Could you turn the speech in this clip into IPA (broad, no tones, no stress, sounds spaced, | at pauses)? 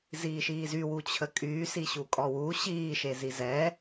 z iː ʃ iː z y w u t͡ɕʰ ə kʼ yː s i ɕ u kʼ ɔ w u ɕ iː ʃ e z i z ɛ